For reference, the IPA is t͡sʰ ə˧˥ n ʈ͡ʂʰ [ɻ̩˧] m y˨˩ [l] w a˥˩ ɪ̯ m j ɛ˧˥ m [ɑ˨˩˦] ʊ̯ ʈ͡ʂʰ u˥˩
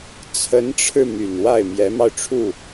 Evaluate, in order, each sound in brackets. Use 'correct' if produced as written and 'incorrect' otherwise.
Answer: correct, incorrect, incorrect

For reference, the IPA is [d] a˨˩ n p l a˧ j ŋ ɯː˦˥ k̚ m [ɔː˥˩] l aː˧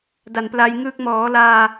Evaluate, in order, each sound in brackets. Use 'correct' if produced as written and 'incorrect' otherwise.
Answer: correct, incorrect

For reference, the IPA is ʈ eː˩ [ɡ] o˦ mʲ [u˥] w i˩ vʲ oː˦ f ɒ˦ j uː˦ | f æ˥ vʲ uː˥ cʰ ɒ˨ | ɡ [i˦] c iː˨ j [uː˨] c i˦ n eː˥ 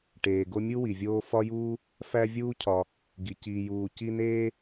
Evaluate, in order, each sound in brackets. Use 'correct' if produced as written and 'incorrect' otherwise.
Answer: correct, correct, incorrect, correct

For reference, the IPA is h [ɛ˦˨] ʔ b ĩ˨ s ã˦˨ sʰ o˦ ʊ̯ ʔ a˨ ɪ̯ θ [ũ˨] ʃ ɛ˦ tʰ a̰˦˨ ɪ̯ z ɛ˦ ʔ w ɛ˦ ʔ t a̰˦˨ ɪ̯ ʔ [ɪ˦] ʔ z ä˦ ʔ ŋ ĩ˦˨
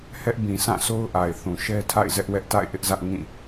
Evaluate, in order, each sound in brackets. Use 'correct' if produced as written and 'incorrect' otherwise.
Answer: incorrect, correct, correct

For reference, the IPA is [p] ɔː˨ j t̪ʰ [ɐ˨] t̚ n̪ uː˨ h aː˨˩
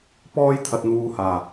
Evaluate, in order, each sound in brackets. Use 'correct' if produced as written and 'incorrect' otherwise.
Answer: correct, correct

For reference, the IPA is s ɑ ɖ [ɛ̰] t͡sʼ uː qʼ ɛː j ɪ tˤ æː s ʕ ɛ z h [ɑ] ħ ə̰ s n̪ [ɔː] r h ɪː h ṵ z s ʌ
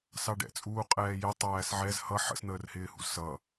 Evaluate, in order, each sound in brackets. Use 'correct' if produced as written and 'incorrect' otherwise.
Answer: correct, incorrect, incorrect

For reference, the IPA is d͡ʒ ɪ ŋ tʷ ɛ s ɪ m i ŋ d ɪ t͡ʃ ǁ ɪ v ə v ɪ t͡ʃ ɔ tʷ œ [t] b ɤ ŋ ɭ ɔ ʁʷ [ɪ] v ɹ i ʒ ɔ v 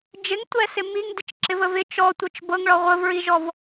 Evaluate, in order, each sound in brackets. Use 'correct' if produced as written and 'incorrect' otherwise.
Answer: incorrect, incorrect

